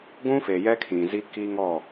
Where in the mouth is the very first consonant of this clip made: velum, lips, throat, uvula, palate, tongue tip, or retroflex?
velum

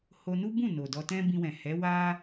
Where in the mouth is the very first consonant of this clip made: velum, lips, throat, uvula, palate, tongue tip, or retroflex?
throat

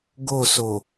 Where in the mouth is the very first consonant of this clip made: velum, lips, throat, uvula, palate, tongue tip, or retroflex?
velum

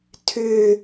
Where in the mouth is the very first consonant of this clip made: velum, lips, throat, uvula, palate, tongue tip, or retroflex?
tongue tip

